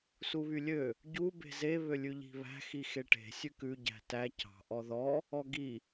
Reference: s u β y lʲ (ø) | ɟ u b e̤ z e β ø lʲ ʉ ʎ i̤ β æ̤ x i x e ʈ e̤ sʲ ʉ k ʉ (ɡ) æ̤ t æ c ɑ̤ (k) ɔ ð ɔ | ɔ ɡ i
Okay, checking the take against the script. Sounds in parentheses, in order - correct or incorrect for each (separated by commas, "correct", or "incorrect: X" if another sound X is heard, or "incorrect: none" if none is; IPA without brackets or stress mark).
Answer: correct, incorrect: ɟ, incorrect: ʔ